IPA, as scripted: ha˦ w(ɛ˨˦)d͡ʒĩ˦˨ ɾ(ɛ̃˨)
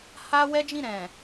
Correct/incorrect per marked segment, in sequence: incorrect: ɛ˦, correct

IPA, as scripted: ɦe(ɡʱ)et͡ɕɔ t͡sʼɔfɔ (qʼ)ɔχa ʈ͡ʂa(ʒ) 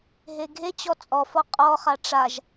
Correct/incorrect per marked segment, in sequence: correct, correct, correct

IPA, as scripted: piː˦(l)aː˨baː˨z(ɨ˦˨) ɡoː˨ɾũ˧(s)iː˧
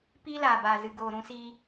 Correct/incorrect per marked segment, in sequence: correct, incorrect: ɨ˨, correct

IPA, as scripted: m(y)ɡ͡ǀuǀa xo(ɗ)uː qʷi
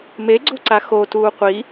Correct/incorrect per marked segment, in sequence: incorrect: e, incorrect: t

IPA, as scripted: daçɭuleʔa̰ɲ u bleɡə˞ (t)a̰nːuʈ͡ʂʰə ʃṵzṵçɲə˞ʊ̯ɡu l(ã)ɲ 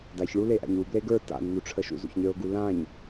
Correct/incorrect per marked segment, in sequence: correct, correct

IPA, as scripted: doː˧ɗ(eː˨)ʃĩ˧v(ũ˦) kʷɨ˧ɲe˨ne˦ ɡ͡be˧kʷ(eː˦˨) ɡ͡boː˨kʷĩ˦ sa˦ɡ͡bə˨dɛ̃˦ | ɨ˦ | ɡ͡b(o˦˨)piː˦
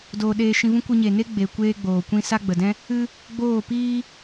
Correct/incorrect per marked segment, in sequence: incorrect: eː˧, correct, incorrect: eː˦, incorrect: oː˦˨

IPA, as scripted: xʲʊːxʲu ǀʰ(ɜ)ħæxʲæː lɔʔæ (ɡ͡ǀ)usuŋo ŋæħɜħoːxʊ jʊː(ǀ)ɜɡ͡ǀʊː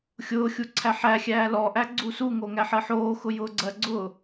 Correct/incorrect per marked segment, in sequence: incorrect: æ, correct, incorrect: ɡ͡ǀ

